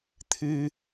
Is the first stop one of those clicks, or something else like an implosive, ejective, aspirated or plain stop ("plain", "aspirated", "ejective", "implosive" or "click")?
aspirated